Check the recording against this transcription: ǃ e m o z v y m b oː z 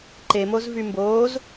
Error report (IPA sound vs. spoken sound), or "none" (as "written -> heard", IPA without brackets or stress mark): none